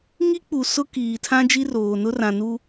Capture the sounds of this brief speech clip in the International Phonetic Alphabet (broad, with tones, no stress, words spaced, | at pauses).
ŋi˦k͡pu˨ sʊ˦kiː˨tʰã˦ d͡ʒi˦roː˨nʊ˦ rã˨nu˦